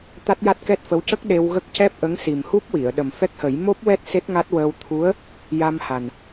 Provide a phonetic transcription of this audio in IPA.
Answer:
t̪a˦˥t̚ja˦˥t̚kɛ˦˥t̚fə˧˥w cə˦˥k̚ ɗe˧wɣə˦˥k̚ cɛ˦˥p̚ʔə˧˥ŋ si˨˩mhu˦˥p̚ wi˨˩˨ə̯ɗə˨˩mfɛ˦˥k̚hə˨˩˦j mo˦˥p̚wɛ˦˥t̚ se˦˥t̚ŋa˦˥t̚wəː˧w t̪ʰu˧˥ə̯ | ja˧mha˨˩n

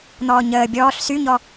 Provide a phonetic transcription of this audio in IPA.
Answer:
n̪ɔːɲəː bʲɔːɬ syɲɔ

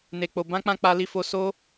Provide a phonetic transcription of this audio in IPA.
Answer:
ne˧k͡po˧ bã˦k͡pã˦ k͡pa˦li˦fo˦ so˦

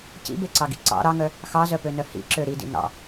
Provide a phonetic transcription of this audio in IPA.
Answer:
cḭbeǀɑɡḭ ǀɑ̰ ɾɑŋœ | xɑzœpønœ hḭǁø ɾidḭ nɑ̰

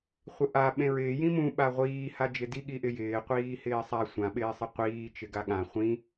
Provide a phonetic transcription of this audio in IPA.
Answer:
χʷɪʔa ɓẽɹɪː jĩmũ ɓaʁʷiː had͡ʒɪdi ɠiʔɪjɪː qʷiːhɪːsˤa sʷã ɓɪːsˤɪqʷiː t͡ʃɪɡaɠã χʷĩ

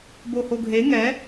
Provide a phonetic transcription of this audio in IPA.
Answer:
bohoɡʱe ŋɛ

